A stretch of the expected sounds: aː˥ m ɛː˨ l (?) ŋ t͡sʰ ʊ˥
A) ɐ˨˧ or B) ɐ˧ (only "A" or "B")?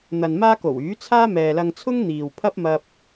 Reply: B